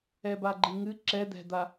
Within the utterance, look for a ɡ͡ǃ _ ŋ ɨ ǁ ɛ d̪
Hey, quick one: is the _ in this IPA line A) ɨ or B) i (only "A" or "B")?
B